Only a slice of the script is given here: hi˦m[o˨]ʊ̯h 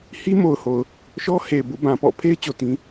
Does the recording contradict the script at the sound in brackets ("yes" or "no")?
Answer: no